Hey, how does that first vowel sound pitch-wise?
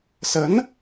rising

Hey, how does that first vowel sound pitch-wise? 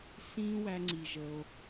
high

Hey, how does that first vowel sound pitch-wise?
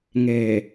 low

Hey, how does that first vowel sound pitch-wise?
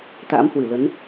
rising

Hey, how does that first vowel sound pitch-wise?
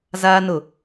high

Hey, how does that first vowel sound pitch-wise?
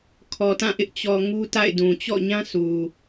low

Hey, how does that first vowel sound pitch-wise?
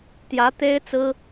rising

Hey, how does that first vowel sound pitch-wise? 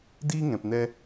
high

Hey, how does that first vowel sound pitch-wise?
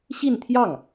falling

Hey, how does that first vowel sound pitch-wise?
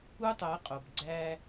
high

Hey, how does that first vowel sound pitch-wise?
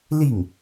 falling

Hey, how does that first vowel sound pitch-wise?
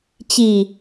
low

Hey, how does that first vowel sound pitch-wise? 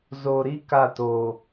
low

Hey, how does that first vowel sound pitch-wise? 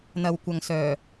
low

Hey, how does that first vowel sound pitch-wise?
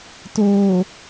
low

